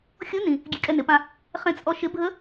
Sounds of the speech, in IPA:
xʲ o˧˥ n ĩ˩ | ɡʲ e˧ kʼ ɛ˧ n ɪ˩˧ p ã˧ | χ ẽ˧ t͡sʼ ɔ˧ ʃ ɪ˧˥ bʱ ə˧˥

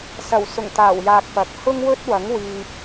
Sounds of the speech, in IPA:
s ɐ˨˩ w s ʊ˨˩ ŋ t̪ aː˨˩ w j aː˨ k̚ p ɐ˨˥ k̚ h ʊ˥ ŋ w ɵ˥ t̚ w ɐ˨˥ ŋ w iː˧ p̚

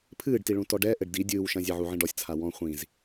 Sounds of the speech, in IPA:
pʰ ɨː ɖ t i ɭ ũ t ɔ ɖ ɛ ʔ ɘ ɖ d i dʲ ɨː w ʃ ɐ̃ zʲ e ʕ u ʕ ĩ ɖ ɔ sʲ t͡sʰ a w ɔ̃ χʷ ĩ z

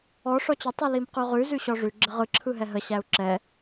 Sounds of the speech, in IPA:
ɔ ʂ ɔ t͡ɕ ə tˤ ɯ l i m q ʉ ʁ ʉ z ʉ ɕ ɔ ʐ ʉ ɡ͡ǁ ə ʁ ɯ ǁʰ ɯ ɦ ɛ ɦ ə ɕ æ u̯ ǁ ɛ

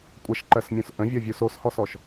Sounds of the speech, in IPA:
kʷʼ ə ʃ ǃ ɜ s mʲ ũ s ʔ ə̃ vʲ ɔ vʲ u s o s h ɔ s ɔ ʃ

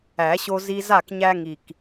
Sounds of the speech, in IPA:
æ˨˩˦ ɕ o˦ z i˦ z a˥˨ k ɲ æ˦ ŋ i˨˩ k

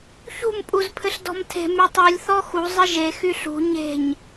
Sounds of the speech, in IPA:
ç ṳ m pʼ u z pʰ ɘ ɬ d ɔ̤ m tʰ e̤ m y tˤ u lʲ θ ɔ x u zˤ ɘ ʒ e x y ɬ ṳ ɲ e̤ ɲ

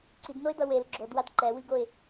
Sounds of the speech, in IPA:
ǀ i d n o ɪ̯ d ʌ w e l ɡ͡ǁ o d w a d ǃ ɛ w i ɡ o ɪ̯

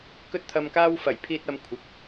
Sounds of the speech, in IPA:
k ɵ˥ t̚ t̪ʰ ɐ˧ m k aː˥ w f ɐ˨˩ j pʰ iː˧ t̚ ɐ˨˧ m kʷʰ ɪ˨ k̚

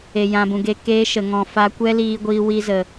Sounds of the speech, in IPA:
e˨ j ã˨ b ũ˨ ɡ e˧ k eː˧ ʃ ə˨ ŋ ɔ̃˨ f aː˧ kʷ ɛ˦ l iː˧ ɡʷ iː˧ w i˧ z ə˨

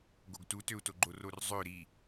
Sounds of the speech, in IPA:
ɡ o ɡ t u t ø u̯ t o ɡ͡ǃ o r o r zˤ ø ɾ i

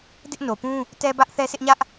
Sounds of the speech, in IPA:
d ɪ˦ ʔ n o˨ p ũ˦ | t ɛ˦ b ä˦ ʔ θ ɛ˦ sʰ ɪ˦ ʔ ɲ ä˦ ʔ

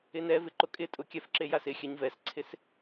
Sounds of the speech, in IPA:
ɪ n ɛ v ɪ ǃ ʊ kʼ ɪ tʼ ʊ kʲ ɛ f ǁ e j a s ɪ xʲ ɛ ɲ v ɛ s ǀʰ ɪ s

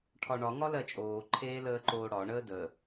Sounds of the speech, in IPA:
ʈʰ ɒ ɳ ɒ ŋ ɒ l ɜ t͡ʃʼ oː ǃʰ eː l əː ǃ oː ɽ ɒ ɳ əː d ə

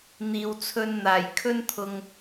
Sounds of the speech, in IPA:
n̪ iː˨ w t͡sʰ ɵ˧ n n̪ aː˨˩ j kʰ ɵ˥ n t̪ʰ ʊ˧ ŋ

